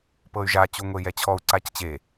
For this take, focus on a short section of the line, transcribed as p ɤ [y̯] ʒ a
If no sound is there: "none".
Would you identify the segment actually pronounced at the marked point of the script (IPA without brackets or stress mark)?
y̯